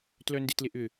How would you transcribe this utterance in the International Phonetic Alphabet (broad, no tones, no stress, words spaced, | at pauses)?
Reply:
tlœndɪtlɪʔʏ